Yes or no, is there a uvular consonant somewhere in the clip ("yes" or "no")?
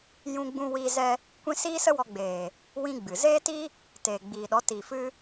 no